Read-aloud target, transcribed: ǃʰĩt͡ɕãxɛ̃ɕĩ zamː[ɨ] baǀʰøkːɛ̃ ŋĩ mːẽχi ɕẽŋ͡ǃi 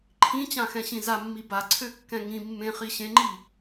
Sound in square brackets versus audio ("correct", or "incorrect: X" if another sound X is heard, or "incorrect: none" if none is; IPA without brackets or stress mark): incorrect: i